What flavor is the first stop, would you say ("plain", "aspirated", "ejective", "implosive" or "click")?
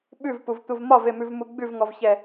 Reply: implosive